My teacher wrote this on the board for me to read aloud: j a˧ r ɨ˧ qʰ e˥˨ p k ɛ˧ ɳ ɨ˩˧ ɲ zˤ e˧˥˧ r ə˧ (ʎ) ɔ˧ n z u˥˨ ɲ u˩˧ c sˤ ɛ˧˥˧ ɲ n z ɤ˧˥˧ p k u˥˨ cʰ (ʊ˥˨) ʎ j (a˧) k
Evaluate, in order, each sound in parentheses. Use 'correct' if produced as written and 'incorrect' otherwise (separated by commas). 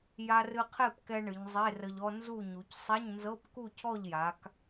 correct, incorrect, incorrect